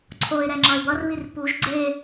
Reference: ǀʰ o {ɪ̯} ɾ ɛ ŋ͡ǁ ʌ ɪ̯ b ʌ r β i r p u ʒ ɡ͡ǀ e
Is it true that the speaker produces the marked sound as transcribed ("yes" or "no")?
yes